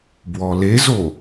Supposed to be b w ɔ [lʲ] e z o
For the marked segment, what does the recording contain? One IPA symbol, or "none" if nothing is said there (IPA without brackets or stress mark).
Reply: l